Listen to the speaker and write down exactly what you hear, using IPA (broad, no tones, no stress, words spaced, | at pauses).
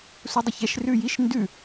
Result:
sudˤəçɛʃ rʉjiʃ ndʉ